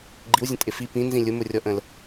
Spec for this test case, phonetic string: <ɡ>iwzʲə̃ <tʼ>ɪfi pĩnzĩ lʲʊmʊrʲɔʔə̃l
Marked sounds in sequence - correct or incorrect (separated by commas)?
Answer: incorrect, correct